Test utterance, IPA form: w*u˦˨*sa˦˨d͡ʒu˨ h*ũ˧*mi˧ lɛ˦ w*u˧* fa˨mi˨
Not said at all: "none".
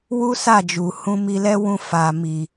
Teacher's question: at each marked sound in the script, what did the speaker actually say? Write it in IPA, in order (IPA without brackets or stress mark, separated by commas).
u˦, ũ˧, ũ˧